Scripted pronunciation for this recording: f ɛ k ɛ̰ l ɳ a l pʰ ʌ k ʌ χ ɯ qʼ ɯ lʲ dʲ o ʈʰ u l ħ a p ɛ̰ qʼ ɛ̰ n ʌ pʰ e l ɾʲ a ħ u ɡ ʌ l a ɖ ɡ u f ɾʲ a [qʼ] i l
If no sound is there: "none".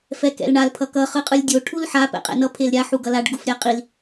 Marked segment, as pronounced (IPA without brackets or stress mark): qʼ